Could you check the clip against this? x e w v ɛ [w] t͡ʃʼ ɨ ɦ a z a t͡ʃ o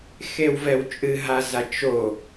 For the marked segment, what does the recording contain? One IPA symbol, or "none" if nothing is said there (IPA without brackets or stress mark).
w